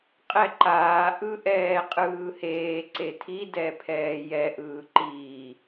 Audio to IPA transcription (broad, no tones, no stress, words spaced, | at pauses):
qʼɛǃaː ʔɯʔɛːqʼɯːheː ǀetʰi dɛpʰɛːjɛ ʔɯːǃiː